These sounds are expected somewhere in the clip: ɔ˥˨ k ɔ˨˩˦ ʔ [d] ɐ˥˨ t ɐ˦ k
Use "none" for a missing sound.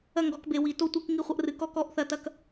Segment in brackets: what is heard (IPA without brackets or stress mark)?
θ